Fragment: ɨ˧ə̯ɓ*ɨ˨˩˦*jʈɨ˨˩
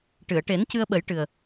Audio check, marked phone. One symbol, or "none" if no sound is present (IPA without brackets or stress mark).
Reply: ə˨˩˦